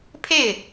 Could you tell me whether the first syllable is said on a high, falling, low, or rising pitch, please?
falling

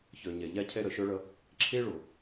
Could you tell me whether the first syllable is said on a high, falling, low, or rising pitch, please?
low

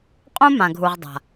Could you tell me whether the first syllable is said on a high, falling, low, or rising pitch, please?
high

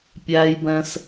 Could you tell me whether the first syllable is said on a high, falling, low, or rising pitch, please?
high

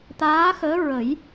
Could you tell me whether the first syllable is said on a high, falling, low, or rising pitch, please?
rising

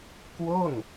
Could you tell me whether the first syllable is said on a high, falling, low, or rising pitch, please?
falling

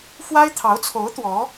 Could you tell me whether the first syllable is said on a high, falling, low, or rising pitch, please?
high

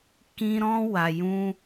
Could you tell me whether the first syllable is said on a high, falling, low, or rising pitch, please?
high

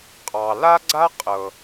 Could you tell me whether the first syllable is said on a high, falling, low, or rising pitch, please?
low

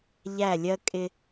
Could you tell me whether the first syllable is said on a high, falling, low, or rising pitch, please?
falling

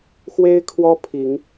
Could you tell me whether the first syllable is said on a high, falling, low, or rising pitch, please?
high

